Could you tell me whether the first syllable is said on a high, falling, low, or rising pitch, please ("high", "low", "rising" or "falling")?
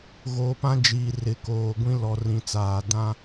low